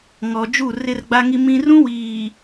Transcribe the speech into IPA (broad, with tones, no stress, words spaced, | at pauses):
ŋɔ˨ d͡ʒu˦˨rɪ˦rɡ͡ba˦ŋi˦ mĩ˦ rũ˦ wiː˨